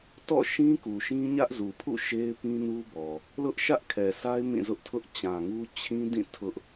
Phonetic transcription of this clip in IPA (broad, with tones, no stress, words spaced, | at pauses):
tɔ̰˦˨ʃĩ˦ku˨ʃĩ˦ ɲä˦ʔzu˨pʰṵ˦˨ ʃe˦ɪ̯pĩ˦nu˦ bɔ˨ | lʊ˦ʔʃä˦ʔkʰɛ˨sa˦ɪ̯ mĩ˦˨zʊ˦ʔtʰʊ˦ʔ t͡ɕã˨ŋu˦ t͡ɕʰĩ˦dĩ˦˨ tʰʊ˦ʔ